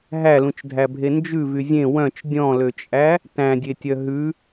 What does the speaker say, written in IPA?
ɦælũt͡ʃdʱæbʱe nd͡ʒʉvy zʲẽ wœ̃t͡ʃ dʲɔ̃løt͡ʃʼæ | tæ̃dʲetʲœ ɦʉ

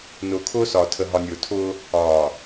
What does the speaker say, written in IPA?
nʊː˨kʰʊː˦sɒ˨ tʰə˨ɦɒ˨nʲʊː˨tʰʊː˦ | ɒː˨

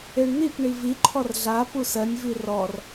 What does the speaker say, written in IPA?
eɳn̪ip ɳiviǃʰɔr ɮa pusɜnʲvi rɔr

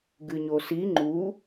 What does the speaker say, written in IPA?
ɡɨɲosi ŋ͡ǃu

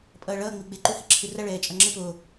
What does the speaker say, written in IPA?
pʼʌːɭʌː ŋ͡miɡ͡be ǃuhiǁʰɯrʌ ɭɛːt͡ʃʼʌŋ͡ǁɯ po

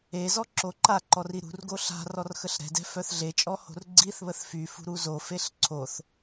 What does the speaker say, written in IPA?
ezɔ ǁoǃaǃɔr iɾṳrɡo ɬa̤ rɔrxəɬɾɛ̤dɛ̤ fœθɮet͡ʃʼɔ ho̤rɡ͡ǀiθβəθ fyfṳ ɾuzofeɬ ǀʰoθ

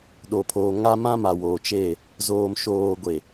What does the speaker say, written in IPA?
ɗo˨pʰoː˨ ŋa˦ mã˦ma˨ woː˨t͡ʃe˦˨ | zoː˨mʃoː˨ ɡʷe˨

